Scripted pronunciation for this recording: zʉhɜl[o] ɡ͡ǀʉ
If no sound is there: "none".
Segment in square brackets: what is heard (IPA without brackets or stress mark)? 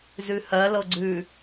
ɤ